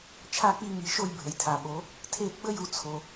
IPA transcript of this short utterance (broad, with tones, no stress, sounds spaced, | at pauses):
t͡ʃʰ a˥˧ k͡p i˥˧ ŋ i˨˦ ʃ o˥˧ j bʱ ə˨ j tʰ a˨ ɓ o˨˦ | tʰ e˥˧ ɡ͡b ə˥˧ j u˨˦ t͡sʰ o˨